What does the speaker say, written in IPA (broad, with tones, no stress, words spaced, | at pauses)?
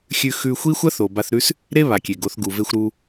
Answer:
xʲʉ˧xʉ˧ xʷi˦xʷɐ˦θo˨ ba˧θɾʉ˦s | ɾe˦βa˨ kʲe˨ɡo˨˦θ ɡu˨ve˧xʷɾu˧